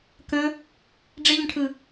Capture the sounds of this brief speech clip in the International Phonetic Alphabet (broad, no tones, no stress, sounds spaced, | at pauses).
k ə̃ | ɖ͡ʐ ɪ ʎ ə̃ ʈʰ ɯ